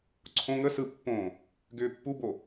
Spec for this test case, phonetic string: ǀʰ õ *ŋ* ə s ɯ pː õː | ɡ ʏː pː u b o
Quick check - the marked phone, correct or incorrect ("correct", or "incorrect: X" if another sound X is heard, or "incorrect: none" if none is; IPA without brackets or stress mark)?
correct